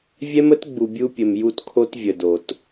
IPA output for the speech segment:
vʲ ɛ˦ m ə˦ t ɡ͡b u˨ bʲ u˦ pʲ ə˨ m j u˦ t kʰ o˦ t vʲ ə˨ d o˨ t

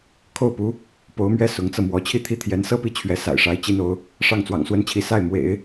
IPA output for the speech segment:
kʰ o˥˩ ʊ̯ p u˧˥ | p o˧˥ ʊ̯ m ɥ ɛ˥ s ʊ˧˥ ŋ t͡s ɤ˧ m w ɔ˧˥ t͡ɕʰ i˥˩ t̪ʰ i˥ t̪ʰ j ɛ˧˥ n s ɤ˥˧ p i˥˩ t͡ɕʰ ɥ ɛ˧˥ s a̰˨˩ ɪ̯ ʂ a˧˥ ɪ̯ t͡ɕ i˥ n o˧˥ ʊ̯ | ʂ ɑ˥˩ ŋ t͡s w ɑ̰˨˩ ŋ s w ə˥ n t͡ɕʰ i˧˥ s a˥˩ ɪ̯ m w ḛ˨˩˦ ɪ̯

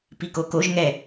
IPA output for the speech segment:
p i k o k o ʒ ŋ ɛ

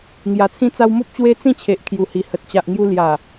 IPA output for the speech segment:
ŋ j a˨˩ t͡sʰ ĩ˧ t͡s a˧ w m o˦ p̚ t͡ɕ w e˦ t͡s ĩ˥˧ t͡ɕʰ e˨ ʔ kʰ j u˨˩ h i˨˩ h ə˨ t̚ t͡ɕ a˨ ʔ ŋ j u˧ l j a˨˩

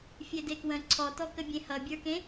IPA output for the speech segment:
fʲ e d e k w ə̃ ǀʰ ɔ t ɔ k ə bʲ ẽ h ʌ bʲ ə˞ k ẽ

